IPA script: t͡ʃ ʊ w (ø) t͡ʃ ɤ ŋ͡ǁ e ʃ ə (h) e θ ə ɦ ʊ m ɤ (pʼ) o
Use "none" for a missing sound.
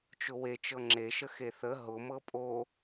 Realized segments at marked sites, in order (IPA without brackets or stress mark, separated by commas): e, x, pʼ